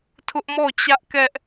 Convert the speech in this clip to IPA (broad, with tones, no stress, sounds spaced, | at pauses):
tʰ ʊ˦ ʔ m ɔ˦˨ t͡ɕ ä˦ ʔ k ɛ˦ ʔ